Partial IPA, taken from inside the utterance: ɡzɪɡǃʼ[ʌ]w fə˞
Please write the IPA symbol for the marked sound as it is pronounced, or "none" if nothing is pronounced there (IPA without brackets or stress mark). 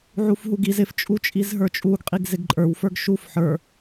ə˞